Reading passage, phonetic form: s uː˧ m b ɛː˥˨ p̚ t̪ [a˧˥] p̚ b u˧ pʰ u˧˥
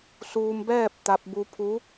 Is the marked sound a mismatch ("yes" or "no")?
yes